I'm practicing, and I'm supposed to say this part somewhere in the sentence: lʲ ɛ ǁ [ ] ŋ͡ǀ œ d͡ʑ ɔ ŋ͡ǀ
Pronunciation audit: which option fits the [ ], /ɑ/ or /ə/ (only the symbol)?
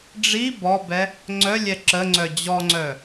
ə